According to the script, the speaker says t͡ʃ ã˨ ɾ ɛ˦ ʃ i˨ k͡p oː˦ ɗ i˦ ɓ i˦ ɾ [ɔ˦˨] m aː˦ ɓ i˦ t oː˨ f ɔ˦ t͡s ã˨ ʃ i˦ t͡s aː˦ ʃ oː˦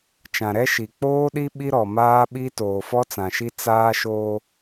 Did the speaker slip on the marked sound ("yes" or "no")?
yes